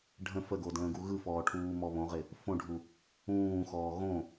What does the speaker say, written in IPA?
ɖʱə̃ fəɡo də̃ːɡuɣɯfɔː ʈʰuːmɔβõʁɪ | fõɖʱu | ũːxɔː ɣõ

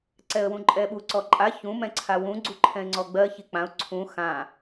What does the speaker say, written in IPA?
ǀɛə̯wũǃʼɛɓu ǀɔǃʼa çũ mɛ̃ǀʰawũ ɡ͡ǀuǃʰɛ̃ɪ̯ŋ͡ǀɔɡ͡bɜ çik͡pãʊ̯ ǀʰũ xã

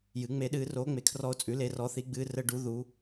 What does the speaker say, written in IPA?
jɨ˩˥ŋ͡me˧˥ɗɨː˧˥ roː˧˥ŋ͡me˩˥kʰrɔ˧˥o̯t͡sʼʉ˩˥ le˧˥rɔ˧˥θi˧˥ɡ͡bɨː˧˥ rə˧˥ɖu˩˥ ðu˩˥

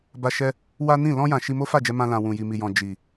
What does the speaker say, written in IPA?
ba˦ʃɛ˦ | wa˦nĩ˦˨ lɔ̃˧jã˨ ʃi˧mo˦fa˦˨d͡ʒɛ˧ mã˧lã˨ wũ˨ji˨mi˨jɔ̃˨ d͡ʒi˨

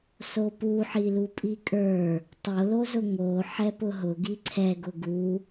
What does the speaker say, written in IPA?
sopuħi lupʼikʼə˞ | tˤolozʊ ŋo ħɛpʊɦʊɡi ǀʰɛɡʊ ɡu

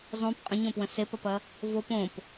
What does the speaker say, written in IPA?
zˤõp qʼə̃ɲõpwə̃ sepɐpɐ | vop õp

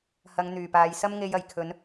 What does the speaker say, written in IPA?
hɐ˨˧ŋn̪yː˨˩paː˨j sɐ˧mŋe˨j ɐ˨˩jkʰɵ˨˧n

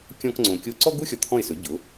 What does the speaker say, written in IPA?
kʲɔ̃˥kŋ͡ǀõ˧ kʲo˥˩ ǀɔ˥ɡu˥ xʲɔ˧t̪ʰɔ̃˥˩ɪ̯sɵ˩˥ ɟʊ˩˥

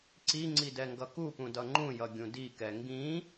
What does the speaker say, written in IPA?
ǀiŋ͡ǀi dɛŋɡʌkupũ dʌŋ͡ǃũjʌ ɡʲũdikɛ ŋɡĩ

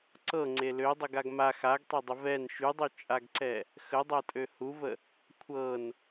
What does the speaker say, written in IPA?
ǀɤŋ͡ǀe lødˤəɡaɡ ma xaɡtˤɛdˤə vɛn ʃydˤyt͡ʃʼaɡǀɛ | xədˤatʼø huvə | kʷʰɤn

